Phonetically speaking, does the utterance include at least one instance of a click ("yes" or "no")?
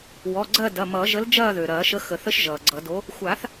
yes